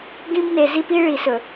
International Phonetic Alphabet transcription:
ɡ ĩ˦ b n e˨ z i˦ p i˦ ɭ i˨ s ɵ˨

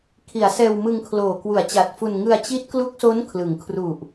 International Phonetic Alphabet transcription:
kʰ i˩˦ a̯ s ɛː˧ w m ɯ˧ ŋ kʰ l oː˨˩ k w u˨˩ a̯ t͡ɕ a˨˩ t̚ f u˧ n ŋ ɯ˧ a̯ t͡ɕ i˦˥ t̚ k l u˦˥ k̚ s o˦˥ n kʰ l ɯ˩˦ ŋ kʰ r u˨˩ ʔ

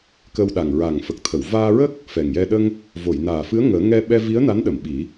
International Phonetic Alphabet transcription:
k ə˧ w ɗ a˨˩ ŋ ɹ a˨˩ ŋ f ə˨˩ k̚ t̪ʰ ə˨˩˨ w v aː˧ ɹ ə˦˥ k̚ | f ɛ˨˩ ŋ j ɛ˧ ɗ ə˧ ŋ | v o˨˩˨ j n aː˨˩ f ɨ˧˥ ə̯ ŋ əː˨˩˦ ŋ ɛ˧ ɓ ɛ˧ v i˧˥ ə̯ n a˧˥ n ɗ ə˨˩˨ m ɓ i˨˩˦

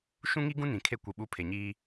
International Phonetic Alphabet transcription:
ʃ ũ˦ ŋ i˦ ɡ ũ˦ n ĩ˨ kʰ e˦ kʷ i˨ ɓ u˦ pʰ e˨ ɲ iː˦

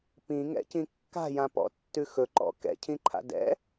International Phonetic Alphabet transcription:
p ĩ ŋ ɛ̰ c ĩ kː a̤ j ã p ɔ̰ tː ʉ x ɵ ǃ ɔ̰ k ɛ̰ cʰ ĩ ǃʰ a̰ d ɛ̰

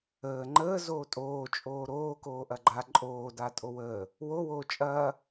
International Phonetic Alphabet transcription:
əː ŋ͡ǃ əː z oː tʼ oː t͡ʃʼ oː ɾ oː k oː ʔ ɐ ɡ͡ǃ a ǃʼ oː d a tʼ o w əː | w o w oː t͡ʃʼ ɐː

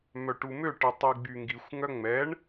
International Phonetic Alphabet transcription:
m œ ʈ u m ø ʈ e tˤ i ɡ͡b y ŋ ɡ i xʷ ŋ œ ŋ͡m ɛ ɳ

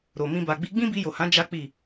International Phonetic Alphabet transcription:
ɾ o˨ m ĩ˧ b a˨ ɡ͡b i˧ ɡ͡b ĩ˦ b i˧ j o˨ h ã˨˦ d͡ʒ a˦ k͡p i˦˨

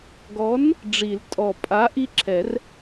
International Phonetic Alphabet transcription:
ɡ ɔ˨˥ n | ɖ͡ʐ i˨˩˦ l tʼ ɔ˨˩ pʼ a˨˥ ʔ i˦ ǁʰ ɛ˨˩˦ r

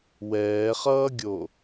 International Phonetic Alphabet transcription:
w ɛː χ ʌː ɡʲ o

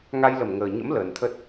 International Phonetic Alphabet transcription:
ŋ a˧ j l ə˧˩ m ŋ əː˨˩ ɲ ə̰˧˥ m l əː˨˩ n t̪ʰ ə˦˥ t̚

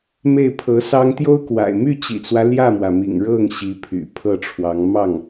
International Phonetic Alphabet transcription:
m e˥˩ ɪ̯ pʰ ɤ˧˥ s ɑ˥ ŋ t̪ j o˥ ʊ̯ k w a̰˨˩ ɪ̯ m y˥˩ t͡ɕ ḭ˨˩ t͡s w ä˦ l j ä˥˩ m w ä˩ m ḭ˨˩ ŋ ɻ ɤ˥˩ ŋ ɕ i˧˥ pʰ y̰˨˩ pʰ ɤ˥˩ ʈ͡ʂʰ w ɑ˧˥ ŋ m ɑ˥˩ ŋ

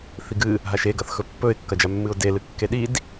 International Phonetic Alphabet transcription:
θ i ɡ ɨ | ɦ a ʃ e ɡ ɐ θ x ɵ pː ɵ ɪ̯ kː ɐ d͡ʒ a mː ɨ ʊ̯ d e l ɨ kː e ɗ i d

